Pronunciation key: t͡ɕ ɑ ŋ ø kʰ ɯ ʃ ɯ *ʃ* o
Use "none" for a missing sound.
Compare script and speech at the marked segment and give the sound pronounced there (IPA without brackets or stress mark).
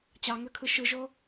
ʒ